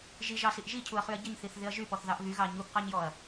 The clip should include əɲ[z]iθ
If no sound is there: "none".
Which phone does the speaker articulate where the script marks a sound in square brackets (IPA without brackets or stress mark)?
θ